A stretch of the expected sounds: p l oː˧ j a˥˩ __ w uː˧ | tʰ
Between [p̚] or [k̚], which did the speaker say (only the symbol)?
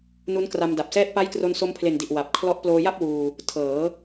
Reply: p̚